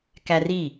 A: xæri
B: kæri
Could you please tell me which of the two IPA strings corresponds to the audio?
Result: B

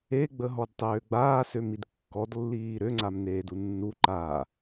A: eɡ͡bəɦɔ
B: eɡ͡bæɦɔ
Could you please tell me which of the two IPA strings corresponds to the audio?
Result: A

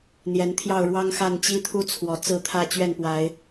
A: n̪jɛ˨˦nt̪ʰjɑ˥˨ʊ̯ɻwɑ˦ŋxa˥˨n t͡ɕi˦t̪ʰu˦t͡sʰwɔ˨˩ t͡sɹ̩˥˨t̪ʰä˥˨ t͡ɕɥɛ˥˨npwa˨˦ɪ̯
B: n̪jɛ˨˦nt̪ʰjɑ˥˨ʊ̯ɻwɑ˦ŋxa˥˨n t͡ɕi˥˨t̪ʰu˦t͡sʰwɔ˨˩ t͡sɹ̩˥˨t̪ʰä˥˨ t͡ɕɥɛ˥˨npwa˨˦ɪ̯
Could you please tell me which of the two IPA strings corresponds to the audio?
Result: A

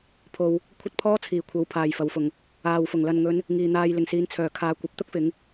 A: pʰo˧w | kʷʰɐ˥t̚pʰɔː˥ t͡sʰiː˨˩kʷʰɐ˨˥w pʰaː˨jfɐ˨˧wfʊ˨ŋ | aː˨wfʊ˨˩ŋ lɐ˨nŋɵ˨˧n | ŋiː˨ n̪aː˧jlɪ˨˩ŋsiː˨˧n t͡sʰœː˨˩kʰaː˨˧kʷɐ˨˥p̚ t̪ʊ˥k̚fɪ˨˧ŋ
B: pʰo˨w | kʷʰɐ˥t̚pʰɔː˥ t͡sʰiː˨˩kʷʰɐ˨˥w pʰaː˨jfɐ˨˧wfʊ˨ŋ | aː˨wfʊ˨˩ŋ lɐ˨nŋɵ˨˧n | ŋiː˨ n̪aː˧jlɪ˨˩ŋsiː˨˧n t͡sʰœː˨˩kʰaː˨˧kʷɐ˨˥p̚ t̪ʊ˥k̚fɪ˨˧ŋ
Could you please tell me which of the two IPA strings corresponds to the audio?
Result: B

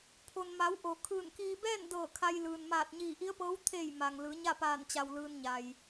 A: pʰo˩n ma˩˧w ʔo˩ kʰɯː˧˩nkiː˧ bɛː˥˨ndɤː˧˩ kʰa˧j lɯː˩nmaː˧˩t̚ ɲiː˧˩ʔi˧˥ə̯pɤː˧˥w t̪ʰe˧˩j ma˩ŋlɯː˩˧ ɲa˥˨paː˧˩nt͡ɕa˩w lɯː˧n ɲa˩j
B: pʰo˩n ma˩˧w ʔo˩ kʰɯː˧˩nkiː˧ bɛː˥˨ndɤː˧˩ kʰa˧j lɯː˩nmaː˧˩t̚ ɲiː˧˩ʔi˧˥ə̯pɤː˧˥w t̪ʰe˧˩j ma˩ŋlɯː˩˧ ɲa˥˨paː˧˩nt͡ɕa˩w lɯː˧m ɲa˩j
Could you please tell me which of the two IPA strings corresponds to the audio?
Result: A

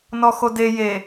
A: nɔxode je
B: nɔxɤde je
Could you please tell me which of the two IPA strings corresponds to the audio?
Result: A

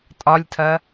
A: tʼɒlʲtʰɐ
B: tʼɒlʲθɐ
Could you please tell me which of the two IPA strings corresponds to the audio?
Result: A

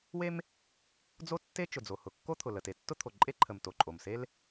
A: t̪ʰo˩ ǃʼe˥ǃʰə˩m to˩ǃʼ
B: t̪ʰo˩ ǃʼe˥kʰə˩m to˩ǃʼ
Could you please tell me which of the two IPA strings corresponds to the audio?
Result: A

